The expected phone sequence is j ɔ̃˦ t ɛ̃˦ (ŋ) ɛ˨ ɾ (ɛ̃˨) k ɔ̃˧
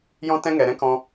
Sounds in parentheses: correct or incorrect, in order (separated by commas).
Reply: correct, incorrect